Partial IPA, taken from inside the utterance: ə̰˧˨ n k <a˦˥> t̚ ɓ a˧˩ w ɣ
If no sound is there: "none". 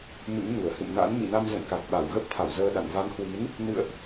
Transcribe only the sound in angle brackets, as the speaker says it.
a˨˩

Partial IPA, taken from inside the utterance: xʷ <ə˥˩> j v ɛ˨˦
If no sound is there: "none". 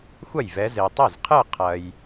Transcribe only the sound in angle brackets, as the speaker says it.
ɐ˥˩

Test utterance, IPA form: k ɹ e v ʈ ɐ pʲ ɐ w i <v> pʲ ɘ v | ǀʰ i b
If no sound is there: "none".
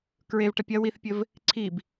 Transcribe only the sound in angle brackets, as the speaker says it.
θ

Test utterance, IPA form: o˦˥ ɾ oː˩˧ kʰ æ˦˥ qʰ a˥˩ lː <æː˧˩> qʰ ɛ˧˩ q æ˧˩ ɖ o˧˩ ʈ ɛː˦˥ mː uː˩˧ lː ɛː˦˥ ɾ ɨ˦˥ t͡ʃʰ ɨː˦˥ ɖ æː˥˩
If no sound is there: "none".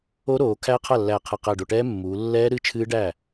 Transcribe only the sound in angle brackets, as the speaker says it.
æː˧˩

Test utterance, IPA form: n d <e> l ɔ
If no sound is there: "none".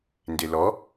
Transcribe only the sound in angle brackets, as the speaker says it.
e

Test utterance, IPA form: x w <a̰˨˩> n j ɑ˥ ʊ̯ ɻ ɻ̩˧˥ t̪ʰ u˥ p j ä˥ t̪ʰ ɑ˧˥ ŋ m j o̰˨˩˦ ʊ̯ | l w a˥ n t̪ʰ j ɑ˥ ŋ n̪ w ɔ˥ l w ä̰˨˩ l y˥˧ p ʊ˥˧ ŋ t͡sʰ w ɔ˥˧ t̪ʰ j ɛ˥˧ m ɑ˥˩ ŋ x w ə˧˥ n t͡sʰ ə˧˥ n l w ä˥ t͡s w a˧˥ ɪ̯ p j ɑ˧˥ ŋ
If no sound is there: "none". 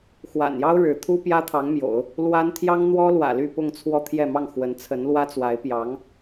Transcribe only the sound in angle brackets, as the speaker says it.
a̰˨˩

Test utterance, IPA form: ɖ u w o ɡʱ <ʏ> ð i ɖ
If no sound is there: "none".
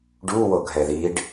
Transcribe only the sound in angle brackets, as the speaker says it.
ɛ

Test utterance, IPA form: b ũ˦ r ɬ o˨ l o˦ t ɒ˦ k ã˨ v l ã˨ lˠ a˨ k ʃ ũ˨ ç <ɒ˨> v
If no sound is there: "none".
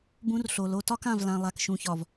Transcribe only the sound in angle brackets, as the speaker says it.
ɒ˨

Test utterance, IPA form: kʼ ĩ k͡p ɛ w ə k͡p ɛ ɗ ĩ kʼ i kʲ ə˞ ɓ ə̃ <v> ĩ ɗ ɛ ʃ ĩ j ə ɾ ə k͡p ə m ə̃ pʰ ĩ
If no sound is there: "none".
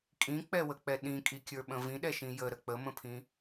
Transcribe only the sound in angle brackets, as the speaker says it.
v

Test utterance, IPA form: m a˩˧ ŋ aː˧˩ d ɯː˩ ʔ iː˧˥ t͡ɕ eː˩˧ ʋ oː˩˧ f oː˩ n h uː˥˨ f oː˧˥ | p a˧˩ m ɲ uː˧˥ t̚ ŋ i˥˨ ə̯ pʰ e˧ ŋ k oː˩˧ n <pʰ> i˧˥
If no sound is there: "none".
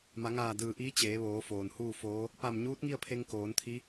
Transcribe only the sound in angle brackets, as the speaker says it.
t̪ʰ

